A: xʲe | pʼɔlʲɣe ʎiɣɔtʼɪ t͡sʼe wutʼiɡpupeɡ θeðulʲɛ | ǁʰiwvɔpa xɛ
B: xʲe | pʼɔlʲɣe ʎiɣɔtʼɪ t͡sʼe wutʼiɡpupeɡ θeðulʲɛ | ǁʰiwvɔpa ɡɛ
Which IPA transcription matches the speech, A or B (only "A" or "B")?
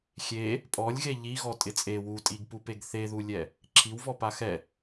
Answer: A